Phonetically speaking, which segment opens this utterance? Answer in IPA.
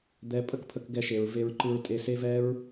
d̪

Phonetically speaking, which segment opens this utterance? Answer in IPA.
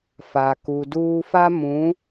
f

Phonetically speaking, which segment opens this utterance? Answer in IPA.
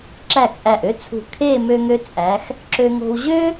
ǁ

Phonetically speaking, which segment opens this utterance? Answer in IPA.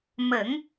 m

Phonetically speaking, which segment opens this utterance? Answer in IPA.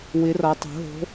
w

